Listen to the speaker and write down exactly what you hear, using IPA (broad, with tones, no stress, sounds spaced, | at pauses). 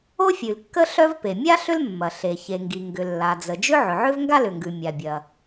o˥ fʲ ʉ˩ l kː ə˥ ɬ œ˥ v p e˩ mʲ a˥ ɬ ʏ˥ l mː ɐ˩ ɬ e˩ ç e˩ ŋ ɡ i˩ ŋ ɡ ʏ˩ lː a˩ d͡z ə˩ d͡ʒ ʏ˥ ʕ ʏ˩ ʕ ʏ˥ v ŋ ɡ a˥ l ʏ˩ ŋ ɡ ʉ˩ mʲ a˩ bʲ ɐ˩